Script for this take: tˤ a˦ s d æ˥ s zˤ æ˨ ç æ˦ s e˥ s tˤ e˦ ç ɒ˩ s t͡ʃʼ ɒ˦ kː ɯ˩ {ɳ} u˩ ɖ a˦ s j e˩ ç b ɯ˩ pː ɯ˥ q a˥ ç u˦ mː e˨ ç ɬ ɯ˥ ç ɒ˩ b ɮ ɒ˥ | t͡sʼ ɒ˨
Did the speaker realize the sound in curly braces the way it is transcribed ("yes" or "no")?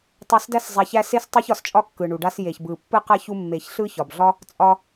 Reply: yes